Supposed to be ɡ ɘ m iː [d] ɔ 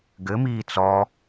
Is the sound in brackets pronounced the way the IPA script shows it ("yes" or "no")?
no